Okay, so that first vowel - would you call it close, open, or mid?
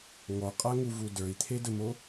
mid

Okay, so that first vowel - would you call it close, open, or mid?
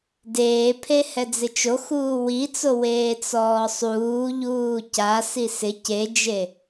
mid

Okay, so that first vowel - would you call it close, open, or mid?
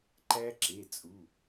open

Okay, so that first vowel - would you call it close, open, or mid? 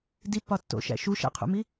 close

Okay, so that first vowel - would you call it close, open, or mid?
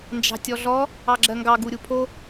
open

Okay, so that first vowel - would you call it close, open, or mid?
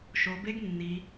mid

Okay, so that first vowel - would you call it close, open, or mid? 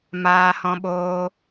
open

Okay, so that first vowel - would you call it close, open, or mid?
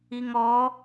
close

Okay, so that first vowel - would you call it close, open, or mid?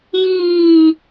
close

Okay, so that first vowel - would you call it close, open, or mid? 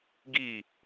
close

